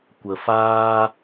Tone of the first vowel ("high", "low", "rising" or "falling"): low